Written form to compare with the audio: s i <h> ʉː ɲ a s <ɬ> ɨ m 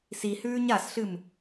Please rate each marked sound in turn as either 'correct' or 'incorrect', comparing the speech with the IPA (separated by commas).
correct, correct